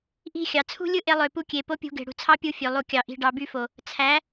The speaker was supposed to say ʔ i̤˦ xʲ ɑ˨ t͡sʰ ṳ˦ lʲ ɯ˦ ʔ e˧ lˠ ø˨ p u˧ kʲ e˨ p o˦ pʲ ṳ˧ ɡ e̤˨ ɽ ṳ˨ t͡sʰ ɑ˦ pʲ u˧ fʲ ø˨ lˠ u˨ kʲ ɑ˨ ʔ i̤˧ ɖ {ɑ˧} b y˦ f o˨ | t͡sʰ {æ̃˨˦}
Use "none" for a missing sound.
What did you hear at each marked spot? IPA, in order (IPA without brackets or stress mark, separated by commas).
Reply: ɑ˧, æ˨˦